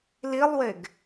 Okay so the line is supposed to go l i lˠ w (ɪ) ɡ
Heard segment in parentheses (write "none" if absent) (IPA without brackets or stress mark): ɪ